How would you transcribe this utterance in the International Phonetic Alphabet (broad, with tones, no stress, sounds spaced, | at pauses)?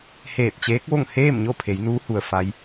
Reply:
h eː˧˩ t̚ t͡ɕ eː˧˥ k̚ ʋ o˥˨ ŋ h eː˥˨ m ɲ o˥˨ pʰ e˩˧ j n uː˧˥ h u˩ ə̯ f a˧˥ j